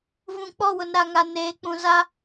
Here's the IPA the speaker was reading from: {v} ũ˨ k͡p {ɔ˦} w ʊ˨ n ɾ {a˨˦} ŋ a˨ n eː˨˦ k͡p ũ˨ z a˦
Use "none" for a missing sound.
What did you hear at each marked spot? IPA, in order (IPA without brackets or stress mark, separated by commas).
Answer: v, ɔ˦˨, a˨